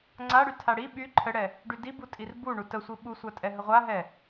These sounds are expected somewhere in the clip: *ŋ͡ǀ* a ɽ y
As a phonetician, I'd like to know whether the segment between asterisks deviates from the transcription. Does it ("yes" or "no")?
no